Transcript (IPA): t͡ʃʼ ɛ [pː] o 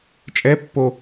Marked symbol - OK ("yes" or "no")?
yes